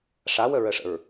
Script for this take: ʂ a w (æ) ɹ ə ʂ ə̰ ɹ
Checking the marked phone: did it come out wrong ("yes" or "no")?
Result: yes